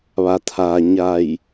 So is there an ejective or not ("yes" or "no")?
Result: no